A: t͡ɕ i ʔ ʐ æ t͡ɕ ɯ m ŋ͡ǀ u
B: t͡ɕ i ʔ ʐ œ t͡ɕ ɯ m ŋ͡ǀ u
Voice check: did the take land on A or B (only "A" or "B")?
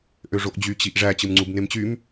A